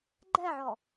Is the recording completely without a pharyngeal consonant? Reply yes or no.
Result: no